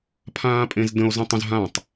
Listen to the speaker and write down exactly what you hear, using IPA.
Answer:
pʰãːpʼẽzdə̃o̯ zə̃tˤə̃z ɦãtˤ

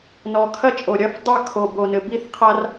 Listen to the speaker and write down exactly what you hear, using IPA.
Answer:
nɔ˨˩kʰɐ˦t͡ʃʼo˨˩ ɾʲɐ˦˨fdˤa˦˨ kʰo˨˩bo˨˩nɘ˨˩ bi˦˨θqʰa˦r

